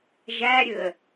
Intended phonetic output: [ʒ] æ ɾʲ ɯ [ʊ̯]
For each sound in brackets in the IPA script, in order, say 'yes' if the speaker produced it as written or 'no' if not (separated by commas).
yes, no